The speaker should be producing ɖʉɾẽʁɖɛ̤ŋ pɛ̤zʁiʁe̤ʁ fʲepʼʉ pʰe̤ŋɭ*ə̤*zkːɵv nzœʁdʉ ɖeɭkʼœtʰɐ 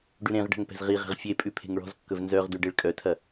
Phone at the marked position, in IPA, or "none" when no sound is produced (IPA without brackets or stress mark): ɔ̤